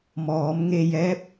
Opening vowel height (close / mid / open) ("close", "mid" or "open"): mid